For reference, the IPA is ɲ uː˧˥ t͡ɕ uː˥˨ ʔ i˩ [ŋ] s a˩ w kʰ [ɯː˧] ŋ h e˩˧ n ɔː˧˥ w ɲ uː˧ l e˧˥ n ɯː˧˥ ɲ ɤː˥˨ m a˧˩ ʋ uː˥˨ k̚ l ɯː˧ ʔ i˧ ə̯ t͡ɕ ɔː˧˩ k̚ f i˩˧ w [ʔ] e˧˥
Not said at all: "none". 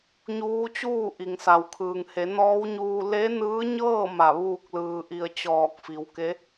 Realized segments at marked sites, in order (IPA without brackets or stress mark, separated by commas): ŋ, ɯː˩, k